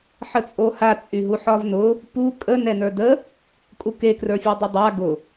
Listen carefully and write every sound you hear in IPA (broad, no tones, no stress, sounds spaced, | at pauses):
ħ ə t͡sʼ o h a t͡sʼ y ɦ u ħ ɒ v n ʊ | p u kʼ ə n ɛ n ə˞ d ə | kʼ u k e k r ə˞ fʲ u dˤ ʊ dˤ a ɡ ʊ